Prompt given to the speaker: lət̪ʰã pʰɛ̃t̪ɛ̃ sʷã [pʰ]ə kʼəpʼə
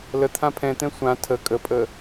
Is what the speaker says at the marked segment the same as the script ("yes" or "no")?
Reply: no